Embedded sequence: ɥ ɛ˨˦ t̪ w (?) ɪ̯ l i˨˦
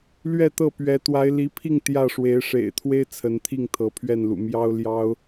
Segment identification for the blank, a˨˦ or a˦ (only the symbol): a˨˦